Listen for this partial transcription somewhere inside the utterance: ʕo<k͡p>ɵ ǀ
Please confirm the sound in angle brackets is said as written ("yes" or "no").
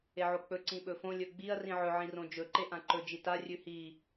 yes